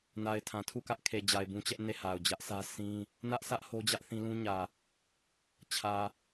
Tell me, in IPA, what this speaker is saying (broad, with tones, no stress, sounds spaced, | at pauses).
n a˨ ɪ̯ tʰ ã˨ tʰ u˦˨ k ä˦ ʔ kʰ e˨ d͡ʑ a˨ ɪ̯ b ũ˦ t͡ɕ ɛ˦ ʔ n e˦˨ h a˨ ʊ̯ d͡ʑ ä˦ ʔ s ä˦ sʰ ĩ˦ | n ä˦ ʔ s ä˦ ʔ h o˦ d͡ʑ ä˦ ʔ θ ĩ˦ l ũ˦ ɲ ä˨ | t͡ɕʰ ä˨